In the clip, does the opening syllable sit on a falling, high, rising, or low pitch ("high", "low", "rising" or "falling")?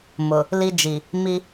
low